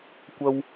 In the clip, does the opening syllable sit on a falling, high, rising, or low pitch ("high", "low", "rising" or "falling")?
high